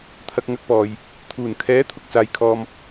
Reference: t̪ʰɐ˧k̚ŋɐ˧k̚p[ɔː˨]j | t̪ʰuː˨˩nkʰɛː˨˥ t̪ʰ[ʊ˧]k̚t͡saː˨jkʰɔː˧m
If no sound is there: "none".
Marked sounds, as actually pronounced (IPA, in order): ɔː˨, ʊ˧

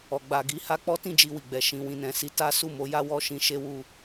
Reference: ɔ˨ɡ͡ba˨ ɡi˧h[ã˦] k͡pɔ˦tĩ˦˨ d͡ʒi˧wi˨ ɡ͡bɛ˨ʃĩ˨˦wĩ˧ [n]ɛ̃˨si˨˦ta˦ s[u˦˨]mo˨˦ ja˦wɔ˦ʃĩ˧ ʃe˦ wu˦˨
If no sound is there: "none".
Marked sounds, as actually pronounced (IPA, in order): a˦, n, u˦˨

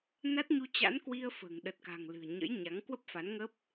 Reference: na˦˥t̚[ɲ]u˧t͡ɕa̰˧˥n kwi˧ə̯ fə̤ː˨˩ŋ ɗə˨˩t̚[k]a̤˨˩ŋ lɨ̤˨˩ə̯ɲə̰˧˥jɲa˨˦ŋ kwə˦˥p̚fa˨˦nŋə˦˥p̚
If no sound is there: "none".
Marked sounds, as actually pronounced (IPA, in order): ɲ, k

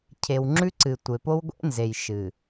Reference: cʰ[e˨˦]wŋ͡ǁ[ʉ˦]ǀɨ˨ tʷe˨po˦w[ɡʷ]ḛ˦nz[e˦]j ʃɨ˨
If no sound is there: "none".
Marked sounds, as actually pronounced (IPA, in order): e˨, ʉ˦, ɡʷ, e˨

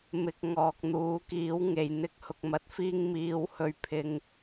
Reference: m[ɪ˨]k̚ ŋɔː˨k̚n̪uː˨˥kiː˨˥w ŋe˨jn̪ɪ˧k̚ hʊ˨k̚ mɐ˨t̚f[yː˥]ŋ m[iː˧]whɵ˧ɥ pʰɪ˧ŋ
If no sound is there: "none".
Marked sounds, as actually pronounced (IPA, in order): ɪ˨, iː˥, iː˧

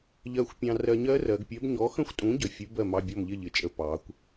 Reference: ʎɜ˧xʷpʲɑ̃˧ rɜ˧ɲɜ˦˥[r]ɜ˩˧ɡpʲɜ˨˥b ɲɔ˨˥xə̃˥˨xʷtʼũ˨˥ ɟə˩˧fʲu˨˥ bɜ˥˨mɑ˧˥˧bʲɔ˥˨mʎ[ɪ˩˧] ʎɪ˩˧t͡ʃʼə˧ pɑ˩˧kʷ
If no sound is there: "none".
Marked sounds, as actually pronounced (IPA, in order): r, ɪ˥˨

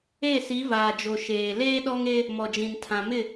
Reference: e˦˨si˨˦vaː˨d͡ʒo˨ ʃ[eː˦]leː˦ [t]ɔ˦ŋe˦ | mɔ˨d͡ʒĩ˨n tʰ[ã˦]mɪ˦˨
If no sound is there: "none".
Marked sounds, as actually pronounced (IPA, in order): eː˨, ɗ, ã˨

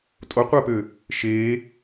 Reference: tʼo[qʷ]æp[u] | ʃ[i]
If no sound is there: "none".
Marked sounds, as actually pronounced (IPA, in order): qʷ, ø, e

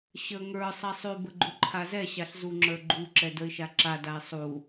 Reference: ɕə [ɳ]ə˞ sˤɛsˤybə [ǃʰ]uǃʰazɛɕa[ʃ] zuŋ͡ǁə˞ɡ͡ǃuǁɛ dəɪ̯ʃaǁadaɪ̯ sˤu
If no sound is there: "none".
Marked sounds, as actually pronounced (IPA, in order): ŋ, ɡ͡ǃ, ɬ

